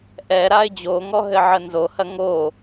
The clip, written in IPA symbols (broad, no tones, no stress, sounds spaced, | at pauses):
ʔ ɛ ɾ a ɪ̯ d͡ʑ o ŋ ɔ ɦ ɘ ʕ ə n z o h ɐ ŋ o